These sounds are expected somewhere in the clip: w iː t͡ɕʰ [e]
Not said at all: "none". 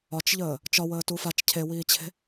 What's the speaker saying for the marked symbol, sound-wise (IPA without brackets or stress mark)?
e̤